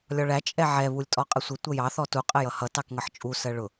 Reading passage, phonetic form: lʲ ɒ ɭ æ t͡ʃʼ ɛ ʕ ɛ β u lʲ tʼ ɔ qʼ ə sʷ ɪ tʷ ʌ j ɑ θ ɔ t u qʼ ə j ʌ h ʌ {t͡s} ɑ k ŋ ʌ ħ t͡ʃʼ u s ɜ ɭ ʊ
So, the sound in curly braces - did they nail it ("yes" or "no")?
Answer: no